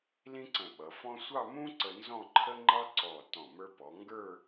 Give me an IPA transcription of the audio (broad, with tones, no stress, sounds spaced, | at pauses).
l ĩ˥ ǀ ə̃˧˩ ɓ ʌ˩˧ f ɔ̃˥ sʷ ɑ˥˧ m ũ˥ ǀ ə˧ n z ɔ̃˥˧ ǃʰ ə˥ ŋ͡ǃ ɑ˥ ǀ ɔ˧˩ t ɔ̃˧˩ m ə˞˧ p ɔ˩˧ ŋ ɡ ə˞˥˧